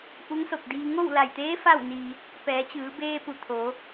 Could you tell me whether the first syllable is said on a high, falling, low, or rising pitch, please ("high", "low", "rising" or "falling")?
rising